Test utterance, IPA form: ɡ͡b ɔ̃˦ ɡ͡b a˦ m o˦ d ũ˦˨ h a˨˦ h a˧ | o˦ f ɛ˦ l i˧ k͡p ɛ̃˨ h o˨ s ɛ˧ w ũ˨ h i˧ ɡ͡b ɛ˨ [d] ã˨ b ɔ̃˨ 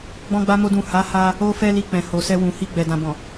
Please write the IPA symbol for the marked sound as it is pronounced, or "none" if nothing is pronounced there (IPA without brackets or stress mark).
d